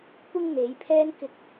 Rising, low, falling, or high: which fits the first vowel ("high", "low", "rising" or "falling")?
high